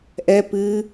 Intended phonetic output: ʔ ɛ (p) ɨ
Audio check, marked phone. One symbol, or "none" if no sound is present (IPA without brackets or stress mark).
p